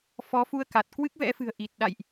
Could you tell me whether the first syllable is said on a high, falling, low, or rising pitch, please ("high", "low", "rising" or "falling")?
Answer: rising